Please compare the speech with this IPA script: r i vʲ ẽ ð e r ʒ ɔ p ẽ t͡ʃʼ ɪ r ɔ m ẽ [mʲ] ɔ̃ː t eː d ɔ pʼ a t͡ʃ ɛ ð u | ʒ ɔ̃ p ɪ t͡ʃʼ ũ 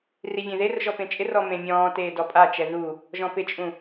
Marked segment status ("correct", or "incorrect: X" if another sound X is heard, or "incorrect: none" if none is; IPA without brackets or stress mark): correct